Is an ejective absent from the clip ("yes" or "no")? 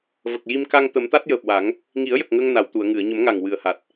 yes